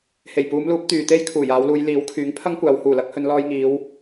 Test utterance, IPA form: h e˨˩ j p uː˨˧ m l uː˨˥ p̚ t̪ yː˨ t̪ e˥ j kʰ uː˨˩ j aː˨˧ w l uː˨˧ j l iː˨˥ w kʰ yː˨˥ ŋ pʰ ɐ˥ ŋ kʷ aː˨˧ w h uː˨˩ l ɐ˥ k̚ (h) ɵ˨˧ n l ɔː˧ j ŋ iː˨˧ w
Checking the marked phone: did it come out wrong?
no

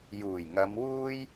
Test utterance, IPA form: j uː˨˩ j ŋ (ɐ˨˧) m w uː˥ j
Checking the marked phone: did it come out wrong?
no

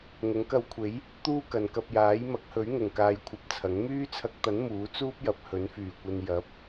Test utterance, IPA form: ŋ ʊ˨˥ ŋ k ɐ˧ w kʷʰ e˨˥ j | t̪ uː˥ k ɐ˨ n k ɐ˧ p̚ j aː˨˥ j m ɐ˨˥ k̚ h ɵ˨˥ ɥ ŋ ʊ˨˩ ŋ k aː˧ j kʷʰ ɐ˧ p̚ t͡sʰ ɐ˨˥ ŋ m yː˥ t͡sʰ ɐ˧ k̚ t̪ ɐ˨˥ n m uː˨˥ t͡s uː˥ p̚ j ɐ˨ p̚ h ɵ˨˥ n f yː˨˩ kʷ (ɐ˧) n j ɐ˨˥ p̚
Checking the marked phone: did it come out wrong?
no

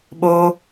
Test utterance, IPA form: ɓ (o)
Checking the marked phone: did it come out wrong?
no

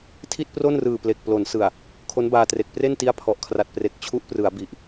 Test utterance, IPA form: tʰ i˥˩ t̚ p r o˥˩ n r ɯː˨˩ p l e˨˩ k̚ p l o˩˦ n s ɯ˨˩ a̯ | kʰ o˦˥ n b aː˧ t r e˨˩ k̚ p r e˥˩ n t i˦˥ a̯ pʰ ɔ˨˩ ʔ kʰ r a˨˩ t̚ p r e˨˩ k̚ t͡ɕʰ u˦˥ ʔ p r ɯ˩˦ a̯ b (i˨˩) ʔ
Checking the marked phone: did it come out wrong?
no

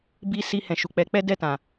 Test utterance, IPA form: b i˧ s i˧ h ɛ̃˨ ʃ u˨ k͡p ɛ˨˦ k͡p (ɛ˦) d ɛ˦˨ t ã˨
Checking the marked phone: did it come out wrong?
no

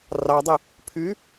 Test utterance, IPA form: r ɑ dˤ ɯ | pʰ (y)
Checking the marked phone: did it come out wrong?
no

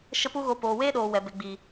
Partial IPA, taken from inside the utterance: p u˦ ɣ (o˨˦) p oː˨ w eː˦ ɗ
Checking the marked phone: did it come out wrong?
yes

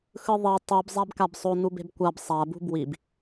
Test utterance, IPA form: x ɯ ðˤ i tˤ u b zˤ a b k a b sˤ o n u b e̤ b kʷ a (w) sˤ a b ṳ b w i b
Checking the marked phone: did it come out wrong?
yes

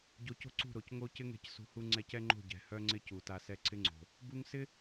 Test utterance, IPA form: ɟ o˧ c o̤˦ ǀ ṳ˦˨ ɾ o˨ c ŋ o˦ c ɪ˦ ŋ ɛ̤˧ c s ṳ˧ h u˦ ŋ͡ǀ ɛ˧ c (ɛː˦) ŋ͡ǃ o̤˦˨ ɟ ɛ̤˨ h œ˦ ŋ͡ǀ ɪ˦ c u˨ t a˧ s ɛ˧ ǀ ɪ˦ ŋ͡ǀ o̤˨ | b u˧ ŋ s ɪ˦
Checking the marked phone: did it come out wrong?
yes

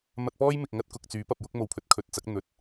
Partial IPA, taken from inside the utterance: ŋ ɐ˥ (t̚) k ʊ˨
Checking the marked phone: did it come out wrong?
no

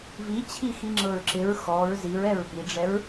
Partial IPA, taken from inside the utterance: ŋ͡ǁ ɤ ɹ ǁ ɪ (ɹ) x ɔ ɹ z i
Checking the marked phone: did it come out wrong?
no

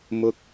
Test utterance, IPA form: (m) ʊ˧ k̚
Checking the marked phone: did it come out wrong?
no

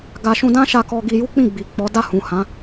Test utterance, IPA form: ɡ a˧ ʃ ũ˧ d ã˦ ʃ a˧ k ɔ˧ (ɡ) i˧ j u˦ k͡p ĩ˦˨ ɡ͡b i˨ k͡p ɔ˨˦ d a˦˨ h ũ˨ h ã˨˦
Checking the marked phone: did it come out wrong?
no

